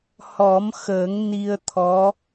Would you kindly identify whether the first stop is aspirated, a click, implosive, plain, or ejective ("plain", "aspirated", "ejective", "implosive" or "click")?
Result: aspirated